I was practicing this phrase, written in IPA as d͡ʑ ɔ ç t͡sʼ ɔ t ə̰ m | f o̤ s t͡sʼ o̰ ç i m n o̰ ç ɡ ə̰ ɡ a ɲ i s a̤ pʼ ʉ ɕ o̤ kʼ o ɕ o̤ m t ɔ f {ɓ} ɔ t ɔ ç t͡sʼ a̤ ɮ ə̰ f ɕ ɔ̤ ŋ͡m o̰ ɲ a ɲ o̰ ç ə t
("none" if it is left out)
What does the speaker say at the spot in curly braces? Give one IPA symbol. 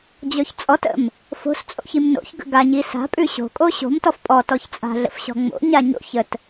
pʼ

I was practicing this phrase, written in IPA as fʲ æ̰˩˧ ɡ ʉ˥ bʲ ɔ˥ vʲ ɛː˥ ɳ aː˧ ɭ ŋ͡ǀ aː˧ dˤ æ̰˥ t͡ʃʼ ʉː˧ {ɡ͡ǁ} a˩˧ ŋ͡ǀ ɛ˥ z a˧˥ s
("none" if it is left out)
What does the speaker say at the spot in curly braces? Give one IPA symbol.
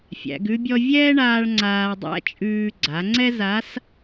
ɡ͡ǀ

